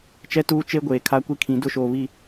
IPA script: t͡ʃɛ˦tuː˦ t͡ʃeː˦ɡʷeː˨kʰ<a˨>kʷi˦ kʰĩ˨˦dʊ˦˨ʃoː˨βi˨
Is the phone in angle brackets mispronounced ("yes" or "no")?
yes